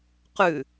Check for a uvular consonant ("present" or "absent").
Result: present